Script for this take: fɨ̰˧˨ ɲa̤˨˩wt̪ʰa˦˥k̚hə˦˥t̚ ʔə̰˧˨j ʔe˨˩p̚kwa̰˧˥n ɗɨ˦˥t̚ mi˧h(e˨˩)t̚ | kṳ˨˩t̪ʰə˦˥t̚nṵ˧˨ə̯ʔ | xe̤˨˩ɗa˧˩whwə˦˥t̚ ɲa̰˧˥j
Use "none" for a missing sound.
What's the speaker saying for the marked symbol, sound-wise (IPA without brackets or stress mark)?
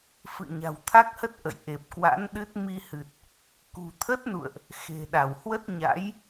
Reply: ɨ˨˩